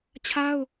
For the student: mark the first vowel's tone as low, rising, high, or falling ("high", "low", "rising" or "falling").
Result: high